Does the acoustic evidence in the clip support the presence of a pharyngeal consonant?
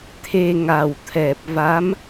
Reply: no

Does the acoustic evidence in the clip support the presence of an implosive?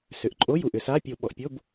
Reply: yes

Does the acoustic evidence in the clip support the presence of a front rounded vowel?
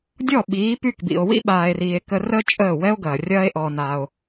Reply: yes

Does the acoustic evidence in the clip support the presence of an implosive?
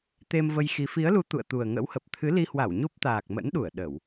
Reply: yes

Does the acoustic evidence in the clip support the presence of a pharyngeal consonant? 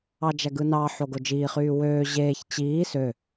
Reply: yes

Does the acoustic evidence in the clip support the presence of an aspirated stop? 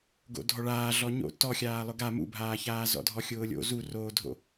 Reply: no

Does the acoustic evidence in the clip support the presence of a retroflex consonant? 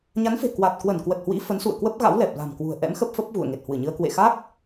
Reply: no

